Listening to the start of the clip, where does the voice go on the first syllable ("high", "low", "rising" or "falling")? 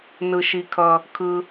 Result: low